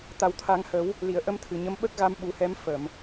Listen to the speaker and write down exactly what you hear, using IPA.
t̪ a˨˩ w t̪ʰ a˨˩˦ ŋ h ə˨˩˦ w | l i˨˩˨ ə̯ ʔ ə˧ m t̪ʰ ɨ˨˩ ɲ ə˧˥ m ɓ ə˦˥ k̚ ɣ a˧ m ɓ u˨˩˦ h ɛ˧˥ m f ə˨˩˨ m

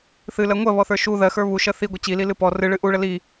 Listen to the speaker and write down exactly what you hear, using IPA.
θ ɨ l ɜ ŋʷ ɜ β ɔ θ ə˞ ʃ u ð ɜ x ə˞ β u ʃ ɜ θ i ɡʷ ɛ t͡ɕ i l i l ɨ p ɔ r ɨ ɭ ɨ ʔ u ɭ ə l i

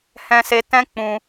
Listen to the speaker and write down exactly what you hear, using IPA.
h ɛ̃˧ s e˧ t ɛ̃˦ k͡p ũ˧

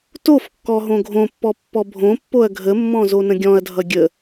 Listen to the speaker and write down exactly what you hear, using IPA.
t o f kː ɔ ɦ õ ɡʱ õ pː ɔ pː ɔ bʱ õ pː o ɐ̯ ɡʱ ə mː ɔ̃ z o n ə̃ ɡʲ ɔ̃ ɐ̯ dʱ ʌ ɡʲ ə

